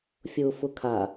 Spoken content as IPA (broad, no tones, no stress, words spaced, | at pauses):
fʲʊːfʊkʰa